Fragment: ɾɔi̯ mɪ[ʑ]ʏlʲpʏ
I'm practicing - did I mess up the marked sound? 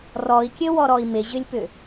no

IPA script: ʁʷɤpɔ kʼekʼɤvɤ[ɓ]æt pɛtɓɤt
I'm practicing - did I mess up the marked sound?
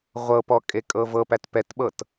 yes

